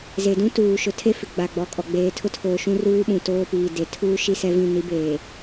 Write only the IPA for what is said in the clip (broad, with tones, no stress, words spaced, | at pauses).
ze˨dũ˦ tuː˨ʃʊ˨tʰe˦fɪ˨ ɡ͡ba˨ɡ͡bɔ˨˦kʼɔ˨ ɡ͡beː˨tʰʊ˦tʰoː˨ ʃũ˦ruː˦ɓũ˨ toː˦piː˨de˨ tʰuː˦ ʃi˦sɛ˦vĩ˦˨ ni˨˦beː˨